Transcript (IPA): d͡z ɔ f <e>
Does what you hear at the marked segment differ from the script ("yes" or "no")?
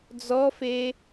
no